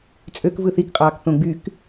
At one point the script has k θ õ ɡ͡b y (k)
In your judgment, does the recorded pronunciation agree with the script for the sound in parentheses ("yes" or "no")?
yes